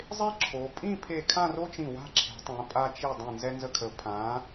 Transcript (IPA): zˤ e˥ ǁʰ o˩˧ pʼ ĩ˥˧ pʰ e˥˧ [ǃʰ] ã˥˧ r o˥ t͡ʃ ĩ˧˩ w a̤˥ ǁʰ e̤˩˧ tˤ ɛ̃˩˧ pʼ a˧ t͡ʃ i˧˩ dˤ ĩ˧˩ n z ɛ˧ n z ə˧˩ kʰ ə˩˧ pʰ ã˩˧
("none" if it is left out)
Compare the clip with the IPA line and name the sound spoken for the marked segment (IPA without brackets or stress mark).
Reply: kʰ